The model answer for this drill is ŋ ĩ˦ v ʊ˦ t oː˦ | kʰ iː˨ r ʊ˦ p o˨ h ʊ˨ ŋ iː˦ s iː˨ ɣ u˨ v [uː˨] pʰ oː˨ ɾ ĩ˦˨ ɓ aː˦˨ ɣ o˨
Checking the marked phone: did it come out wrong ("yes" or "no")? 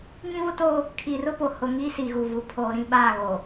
yes